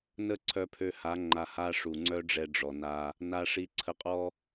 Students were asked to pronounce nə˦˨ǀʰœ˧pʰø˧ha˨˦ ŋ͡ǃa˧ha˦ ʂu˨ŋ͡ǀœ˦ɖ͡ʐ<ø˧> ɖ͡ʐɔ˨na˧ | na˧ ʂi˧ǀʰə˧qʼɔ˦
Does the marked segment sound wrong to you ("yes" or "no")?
yes